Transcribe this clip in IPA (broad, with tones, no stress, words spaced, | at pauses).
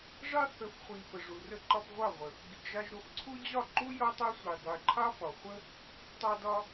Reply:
ʐɑ˦ θə˨˦fχʷi˨ fə˨ʐu˨rə˧ǃɒ˧p ʁʷɑ˦˨ʁʷə˨ | ɡi˨ɡʒɑ˧ʒ ɾo˧fǀʰu˦ d͡ʑɒ˦˨ǃu˦ jɒ˦tˤɑ˦sʷʌ˨j dˤə˨jǃʰɑ˦fɒ˨ χʷə˦ | tˤɑ˧dɒ˧